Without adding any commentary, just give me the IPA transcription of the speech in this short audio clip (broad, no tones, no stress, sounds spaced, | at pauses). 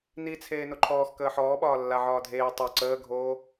n i t͡sʰ eː n o ǃʰ ɔː x k əː ħ ɔː ɓ ɒː lː a ʕ ɒː dʱ eː tˤ o ǀ əː ɡʱ oː